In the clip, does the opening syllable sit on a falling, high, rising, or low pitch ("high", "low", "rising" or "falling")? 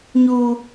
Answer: high